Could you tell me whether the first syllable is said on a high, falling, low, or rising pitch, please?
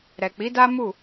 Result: low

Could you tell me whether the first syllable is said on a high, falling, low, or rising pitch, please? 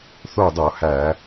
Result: falling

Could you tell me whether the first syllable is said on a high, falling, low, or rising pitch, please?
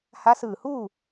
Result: rising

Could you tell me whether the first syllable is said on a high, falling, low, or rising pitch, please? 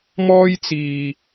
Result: high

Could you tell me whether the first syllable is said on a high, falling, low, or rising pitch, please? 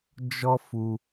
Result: high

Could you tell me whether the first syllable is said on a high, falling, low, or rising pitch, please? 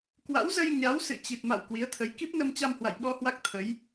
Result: rising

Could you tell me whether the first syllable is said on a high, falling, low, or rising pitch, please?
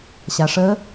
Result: low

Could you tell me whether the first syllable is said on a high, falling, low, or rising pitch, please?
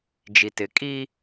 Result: low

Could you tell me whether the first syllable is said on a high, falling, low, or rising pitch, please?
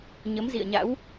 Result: rising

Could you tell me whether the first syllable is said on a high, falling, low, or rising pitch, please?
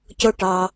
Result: high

